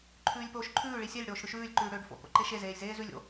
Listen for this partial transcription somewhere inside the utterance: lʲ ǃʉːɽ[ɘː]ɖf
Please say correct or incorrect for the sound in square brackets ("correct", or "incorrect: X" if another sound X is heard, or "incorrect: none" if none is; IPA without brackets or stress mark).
incorrect: øː